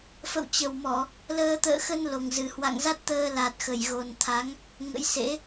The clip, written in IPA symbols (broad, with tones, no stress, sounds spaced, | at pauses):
f ə̰˧˨ w t͡ɕ ə˨˩ w m ɔ˧˩˨ | l əː˧ t̪ ə̰ː˧˨ x ə˧ n l o˨˩ ŋ z ɨ˨˩ h w a̰˧˨ ŋ z a˦˥ t̚ t̪ əː˧ l a˨˩ t̚ x ə˧˩ j ɣ o˨˩ n t̪ʰ a˨˦ ŋ | ŋ ə̰˧˥ j s ḛ˧˥